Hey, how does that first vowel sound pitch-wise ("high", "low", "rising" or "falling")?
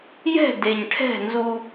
falling